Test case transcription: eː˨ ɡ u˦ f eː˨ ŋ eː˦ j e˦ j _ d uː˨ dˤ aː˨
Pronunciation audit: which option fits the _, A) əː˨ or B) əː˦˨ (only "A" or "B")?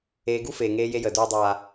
A